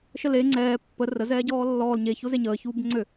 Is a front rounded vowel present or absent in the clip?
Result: present